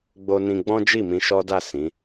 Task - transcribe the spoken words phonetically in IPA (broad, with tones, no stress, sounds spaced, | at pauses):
ɡ͡b o˧ n ĩ˧ ɡ͡b ɔ̃˦ d͡ʒ i˦˨ m ĩ˧ ʃ ɔ˦ d a˦˨ s ĩ˨˦